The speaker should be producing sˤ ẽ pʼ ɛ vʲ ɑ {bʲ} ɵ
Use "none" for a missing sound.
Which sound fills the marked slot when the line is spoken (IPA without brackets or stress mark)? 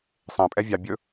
bʲ